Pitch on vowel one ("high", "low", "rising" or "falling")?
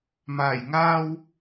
low